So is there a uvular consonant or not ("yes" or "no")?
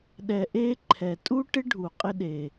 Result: yes